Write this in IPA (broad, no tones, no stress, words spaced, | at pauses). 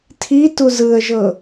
tʰi tuzɯə̯ʒɤ